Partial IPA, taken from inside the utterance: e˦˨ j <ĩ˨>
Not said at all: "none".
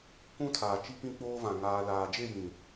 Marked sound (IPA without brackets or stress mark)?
ĩ˨